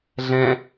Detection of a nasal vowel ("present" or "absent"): present